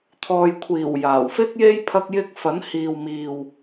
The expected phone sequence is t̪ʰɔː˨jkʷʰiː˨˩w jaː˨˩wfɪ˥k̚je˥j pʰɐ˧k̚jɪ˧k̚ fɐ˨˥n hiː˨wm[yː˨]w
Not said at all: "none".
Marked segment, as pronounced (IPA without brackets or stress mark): iː˨